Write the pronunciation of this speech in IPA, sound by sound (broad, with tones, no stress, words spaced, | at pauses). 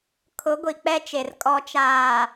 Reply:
kʰʊ˨˦ɡʷi˨k͡pɛ˦t͡ʃe˨r kʼɔ˨t͡ʃaː˨